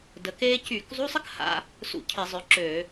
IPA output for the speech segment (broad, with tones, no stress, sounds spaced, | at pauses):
d ə˨˦ k eː˥ c yː˧˩˧ k zˤ u˧˥˧ sˤ ə˥ k h a̰˧˥˧ | s ṵ˧˥˧ cʰ i˧˩˧ zˤ ø˨˦ ǁ ø˧˩˧